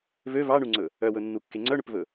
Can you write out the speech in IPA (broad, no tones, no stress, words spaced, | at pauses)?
vø vɑɳuŋ͡ǀɵ | œwɵnːukːe ŋ͡ǀœɳɵpvɵ